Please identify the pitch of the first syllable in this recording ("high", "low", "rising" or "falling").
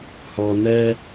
low